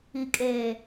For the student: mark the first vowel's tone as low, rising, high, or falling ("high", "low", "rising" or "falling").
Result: low